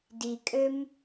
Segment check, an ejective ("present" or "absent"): present